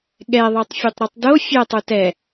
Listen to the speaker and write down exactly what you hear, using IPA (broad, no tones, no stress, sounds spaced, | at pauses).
ɠ ɛ ðˤ ə˞ tˤ fʲ o tˤ ɾ u tˤ d o fʲ ɛ tˤ u t ɛ